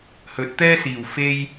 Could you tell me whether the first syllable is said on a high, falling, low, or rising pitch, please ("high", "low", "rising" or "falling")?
rising